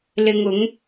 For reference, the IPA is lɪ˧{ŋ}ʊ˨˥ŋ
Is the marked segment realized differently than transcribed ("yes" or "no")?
no